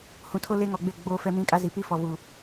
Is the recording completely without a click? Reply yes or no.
yes